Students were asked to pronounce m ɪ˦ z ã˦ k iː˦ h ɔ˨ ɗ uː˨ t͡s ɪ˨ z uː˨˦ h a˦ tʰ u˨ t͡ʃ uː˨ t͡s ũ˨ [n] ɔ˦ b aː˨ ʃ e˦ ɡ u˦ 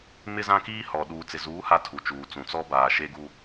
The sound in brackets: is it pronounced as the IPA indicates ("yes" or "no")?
no